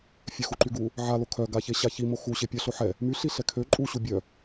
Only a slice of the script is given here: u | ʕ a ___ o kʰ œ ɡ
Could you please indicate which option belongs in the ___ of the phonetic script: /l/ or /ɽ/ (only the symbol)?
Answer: l